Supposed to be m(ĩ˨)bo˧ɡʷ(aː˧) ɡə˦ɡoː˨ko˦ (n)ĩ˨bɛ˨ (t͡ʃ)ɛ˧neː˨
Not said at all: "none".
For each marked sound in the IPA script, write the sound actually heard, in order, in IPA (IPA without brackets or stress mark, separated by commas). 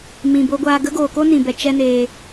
ĩ˨, aː˧, n, t͡ʃ